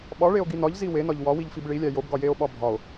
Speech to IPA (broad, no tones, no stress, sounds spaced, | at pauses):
ɓ ɒ ɭ e o̯ ɡ i n ɒ ʎ z i w e n ɒ ʎ w ɒ w i ʎ f i b ɭ i lʲ æ j o b ɡ ɒ j e o̯ ɓ ɒ bʱ ɒ o̯